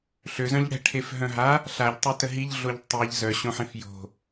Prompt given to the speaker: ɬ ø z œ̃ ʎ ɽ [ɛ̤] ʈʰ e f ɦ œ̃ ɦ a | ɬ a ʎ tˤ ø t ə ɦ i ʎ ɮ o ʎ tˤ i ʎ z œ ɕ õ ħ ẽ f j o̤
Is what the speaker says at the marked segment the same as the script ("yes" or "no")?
yes